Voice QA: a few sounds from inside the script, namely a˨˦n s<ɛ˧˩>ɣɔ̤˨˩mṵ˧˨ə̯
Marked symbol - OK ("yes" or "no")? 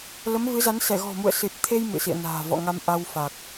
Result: yes